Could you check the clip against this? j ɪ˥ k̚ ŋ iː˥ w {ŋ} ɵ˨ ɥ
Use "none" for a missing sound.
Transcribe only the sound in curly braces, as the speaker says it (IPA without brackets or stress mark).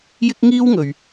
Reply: ŋ